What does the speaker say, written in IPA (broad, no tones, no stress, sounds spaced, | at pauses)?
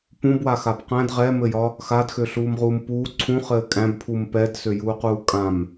p ũ b w a x a b q æ̃ d ʁ ɛ m ɘ j ɒ | x a d x ø ɬ uː m ʁ uː m p uː ǀʰ ũ χ ɘː kʼ æ̃ b pʰ u m p ɛ d s ø j uː q uː kʼ ã m